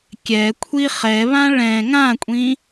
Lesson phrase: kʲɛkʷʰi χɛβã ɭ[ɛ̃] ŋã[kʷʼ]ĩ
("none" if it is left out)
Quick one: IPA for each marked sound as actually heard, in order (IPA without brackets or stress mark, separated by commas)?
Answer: ɛ̃, kʷʼ